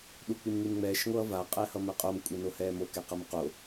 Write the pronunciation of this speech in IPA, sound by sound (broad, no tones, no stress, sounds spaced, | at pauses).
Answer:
ɗ u k͡p i m ŋ i m ŋ͡m ɛː ʃ ŋʷ ʌː v a qʼ ɛ h ʌ m ɛ qʼ o m kʷʼ e n o h ɛː m o k ɛ q ʌ m q o